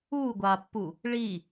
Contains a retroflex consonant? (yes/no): yes